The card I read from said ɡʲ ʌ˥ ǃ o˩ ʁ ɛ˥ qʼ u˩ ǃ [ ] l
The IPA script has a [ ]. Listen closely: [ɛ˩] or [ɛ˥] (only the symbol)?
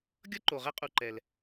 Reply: ɛ˩